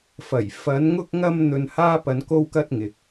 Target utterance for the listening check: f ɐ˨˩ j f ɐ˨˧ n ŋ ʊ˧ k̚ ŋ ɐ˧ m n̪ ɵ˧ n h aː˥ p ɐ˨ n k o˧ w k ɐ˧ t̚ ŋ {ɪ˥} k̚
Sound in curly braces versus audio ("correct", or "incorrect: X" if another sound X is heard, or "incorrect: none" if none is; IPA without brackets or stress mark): incorrect: ɪ˨